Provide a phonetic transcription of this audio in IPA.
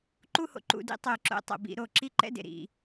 ǃ u˥˧ h o̰˩ ǃ ṵ˧˩˧ d ḭ˧˥˧ tˤ o˧˩˧ ǁ o̰˧˩˧ tˤ o̰˩ b ḭ˧˩˧ ɾ o˧˩˧ ǁ i˥ ǃ ɛ̰˧˥˧ d ḛ˩ ɾ ḭ˧˩˧

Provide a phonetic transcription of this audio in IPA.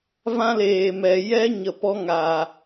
v ã˦ l eː˨ m ɛ˨ j ɛ˦ ɲ ə˨ p ɔ˦ ŋ a˨

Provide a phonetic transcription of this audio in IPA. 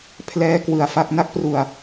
pʰ l ɛː˦˥ k w ɯ˨˩ a̯ f a˥˩ k̚ n a˦˥ k̚ p r u˨˩ a̯

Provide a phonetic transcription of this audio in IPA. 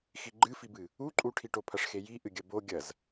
x i ɡ͡ǃ ɨ f i b ɨ | u ǃʼ u ʈʰ i ʈ o pʰ ɐ ʂ x e j i ʔ ɨ ɡʲ ɐ b o ɡʲ ɐ z

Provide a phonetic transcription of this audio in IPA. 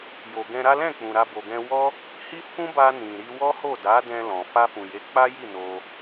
j o˨ ɡ ɛ̃˧ ɾ a˦ l ɛ̃˦˨ k͡p ũ˨ ɾ a˧ b o˨ ɡ ɛ̃˧ w ɔ˦ | h i˦ f ũ˦ b a˧ n ĩ˨ ɾ i˧ w ɔ˦ h o˦˨ d a˨˦ d ɛ̃˧ l ɔ̃˨ f a˧ f ũ˨ j e˨˦ k͡p a˦ j i˦˨ n o˧

